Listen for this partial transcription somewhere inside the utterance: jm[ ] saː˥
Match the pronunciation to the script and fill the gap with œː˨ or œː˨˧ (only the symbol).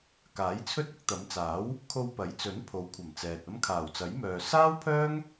œː˨